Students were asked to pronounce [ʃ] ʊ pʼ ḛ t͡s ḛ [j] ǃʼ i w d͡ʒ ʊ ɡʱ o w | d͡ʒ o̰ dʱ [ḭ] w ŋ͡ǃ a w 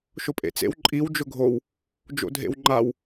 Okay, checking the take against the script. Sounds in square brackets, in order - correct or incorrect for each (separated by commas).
correct, incorrect, incorrect